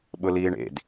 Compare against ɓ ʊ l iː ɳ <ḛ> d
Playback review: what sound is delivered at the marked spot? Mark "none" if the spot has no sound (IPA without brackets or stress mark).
ḛ